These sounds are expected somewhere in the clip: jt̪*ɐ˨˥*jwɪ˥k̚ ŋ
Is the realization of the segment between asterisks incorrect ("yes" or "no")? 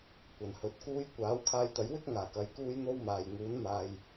no